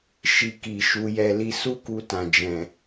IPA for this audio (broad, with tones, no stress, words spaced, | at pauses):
ʃi˧ki˨ ʃu˧jɛ˧ li˧su˦ku˧ tã˨d͡ʒɛ̃˨